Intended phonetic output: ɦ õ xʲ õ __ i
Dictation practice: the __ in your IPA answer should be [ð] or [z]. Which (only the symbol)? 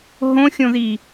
ð